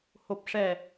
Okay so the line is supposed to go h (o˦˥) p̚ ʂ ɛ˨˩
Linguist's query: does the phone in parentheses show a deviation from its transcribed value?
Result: yes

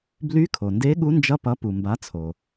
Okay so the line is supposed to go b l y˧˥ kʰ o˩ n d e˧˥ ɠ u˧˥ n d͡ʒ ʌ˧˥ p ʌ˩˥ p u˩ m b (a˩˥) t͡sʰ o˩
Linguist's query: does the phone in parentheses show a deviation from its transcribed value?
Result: no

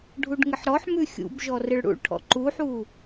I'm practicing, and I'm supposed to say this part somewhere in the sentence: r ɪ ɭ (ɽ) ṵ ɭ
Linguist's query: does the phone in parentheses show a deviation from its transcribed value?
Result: no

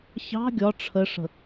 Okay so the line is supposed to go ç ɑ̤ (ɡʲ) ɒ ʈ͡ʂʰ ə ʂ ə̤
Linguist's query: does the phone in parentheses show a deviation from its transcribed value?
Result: no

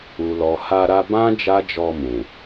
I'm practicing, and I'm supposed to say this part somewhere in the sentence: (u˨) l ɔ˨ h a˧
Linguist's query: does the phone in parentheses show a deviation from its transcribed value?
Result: no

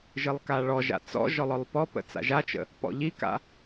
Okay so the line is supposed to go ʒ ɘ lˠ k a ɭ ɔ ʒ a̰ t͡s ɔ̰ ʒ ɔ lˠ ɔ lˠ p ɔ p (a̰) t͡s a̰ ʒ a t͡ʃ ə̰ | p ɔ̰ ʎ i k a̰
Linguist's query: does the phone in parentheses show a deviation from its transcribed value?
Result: yes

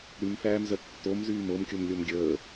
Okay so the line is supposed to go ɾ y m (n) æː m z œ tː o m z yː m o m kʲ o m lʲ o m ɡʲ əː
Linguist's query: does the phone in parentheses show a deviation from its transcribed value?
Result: yes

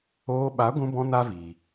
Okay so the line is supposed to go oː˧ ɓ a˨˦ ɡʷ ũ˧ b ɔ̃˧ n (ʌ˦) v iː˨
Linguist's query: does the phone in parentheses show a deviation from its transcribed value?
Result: yes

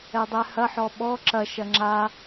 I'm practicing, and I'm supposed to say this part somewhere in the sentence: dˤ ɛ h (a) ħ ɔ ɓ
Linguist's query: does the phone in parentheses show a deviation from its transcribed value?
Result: yes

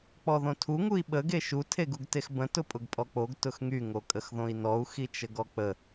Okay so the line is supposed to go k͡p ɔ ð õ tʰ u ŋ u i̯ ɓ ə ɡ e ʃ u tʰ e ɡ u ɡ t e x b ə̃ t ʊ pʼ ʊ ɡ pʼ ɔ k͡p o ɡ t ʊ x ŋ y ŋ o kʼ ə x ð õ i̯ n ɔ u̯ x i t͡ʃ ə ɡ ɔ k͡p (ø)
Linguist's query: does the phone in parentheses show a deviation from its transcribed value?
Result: yes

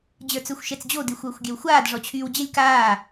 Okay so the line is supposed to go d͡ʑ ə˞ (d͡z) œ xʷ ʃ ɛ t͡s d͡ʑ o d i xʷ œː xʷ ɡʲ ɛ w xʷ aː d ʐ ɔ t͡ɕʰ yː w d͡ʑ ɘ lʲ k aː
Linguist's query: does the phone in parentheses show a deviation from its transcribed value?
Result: yes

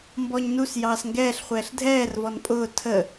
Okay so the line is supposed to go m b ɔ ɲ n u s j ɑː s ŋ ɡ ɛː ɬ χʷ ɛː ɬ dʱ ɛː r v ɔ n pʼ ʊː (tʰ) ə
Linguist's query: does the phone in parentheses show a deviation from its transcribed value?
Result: no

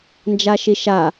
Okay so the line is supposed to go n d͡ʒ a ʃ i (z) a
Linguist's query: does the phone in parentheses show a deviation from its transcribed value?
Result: yes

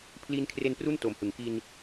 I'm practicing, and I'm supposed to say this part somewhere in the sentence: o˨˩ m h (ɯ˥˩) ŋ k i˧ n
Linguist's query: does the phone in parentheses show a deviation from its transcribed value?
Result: yes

